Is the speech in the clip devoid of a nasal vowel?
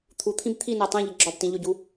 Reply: no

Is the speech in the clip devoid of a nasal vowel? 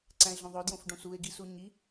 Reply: no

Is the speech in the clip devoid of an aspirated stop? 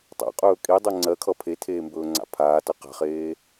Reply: no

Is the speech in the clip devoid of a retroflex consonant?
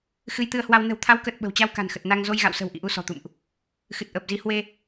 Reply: yes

